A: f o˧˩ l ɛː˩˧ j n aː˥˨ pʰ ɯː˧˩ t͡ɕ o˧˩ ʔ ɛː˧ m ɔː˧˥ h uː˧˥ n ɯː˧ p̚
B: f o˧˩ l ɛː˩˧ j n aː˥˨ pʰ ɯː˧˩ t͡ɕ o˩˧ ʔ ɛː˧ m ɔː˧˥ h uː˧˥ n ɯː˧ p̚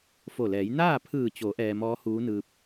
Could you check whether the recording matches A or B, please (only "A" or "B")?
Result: B